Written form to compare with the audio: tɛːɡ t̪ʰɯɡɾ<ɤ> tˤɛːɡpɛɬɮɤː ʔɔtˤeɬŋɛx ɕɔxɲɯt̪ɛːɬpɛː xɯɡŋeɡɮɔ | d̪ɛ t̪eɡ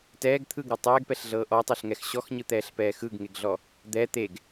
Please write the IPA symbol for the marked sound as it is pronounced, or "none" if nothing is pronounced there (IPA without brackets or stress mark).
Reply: ɤ